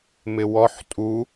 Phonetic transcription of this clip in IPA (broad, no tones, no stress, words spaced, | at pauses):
mɪwɔħ tʼu